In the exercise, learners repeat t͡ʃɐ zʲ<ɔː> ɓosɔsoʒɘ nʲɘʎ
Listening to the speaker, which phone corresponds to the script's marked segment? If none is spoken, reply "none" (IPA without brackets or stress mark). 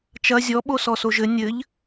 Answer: ɔ